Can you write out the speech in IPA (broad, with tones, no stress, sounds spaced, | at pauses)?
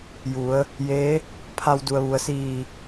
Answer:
j u˩˧ ə̯ | j eː˧˥ | pʰ a˧ w d u˩ ə̯ ʋ u˩ ə̯ s iː˧˩